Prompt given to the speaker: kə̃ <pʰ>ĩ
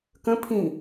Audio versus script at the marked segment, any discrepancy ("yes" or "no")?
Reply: no